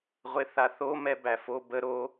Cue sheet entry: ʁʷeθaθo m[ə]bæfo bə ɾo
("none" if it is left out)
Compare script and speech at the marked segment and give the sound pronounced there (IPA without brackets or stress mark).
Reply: ɛ